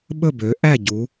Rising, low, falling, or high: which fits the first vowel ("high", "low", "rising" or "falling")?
falling